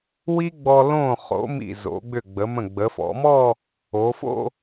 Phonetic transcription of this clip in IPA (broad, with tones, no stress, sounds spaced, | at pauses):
w i˥ ɡ͡b ɔ˧ l õ˧˩ χ o̰˩˧ m ḭ˧˩ z o̰˩˧ ɡ͡b ʏ˧˩ ɡ͡b ə˩˧ m ə̃˧˩ ɡ͡b ə˩˧ f ɔ̰˩˧ m ɔ˥˧ | o˩˧ f o̰˥˧